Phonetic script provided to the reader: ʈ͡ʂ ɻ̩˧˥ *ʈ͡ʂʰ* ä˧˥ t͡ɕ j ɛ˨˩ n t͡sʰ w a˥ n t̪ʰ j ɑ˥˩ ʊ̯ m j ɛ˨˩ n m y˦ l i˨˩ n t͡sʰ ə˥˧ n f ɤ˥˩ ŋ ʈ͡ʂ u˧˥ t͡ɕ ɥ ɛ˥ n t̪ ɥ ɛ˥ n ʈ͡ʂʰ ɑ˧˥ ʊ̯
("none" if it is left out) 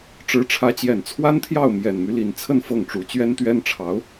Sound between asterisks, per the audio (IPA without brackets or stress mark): ʈ͡ʂʰ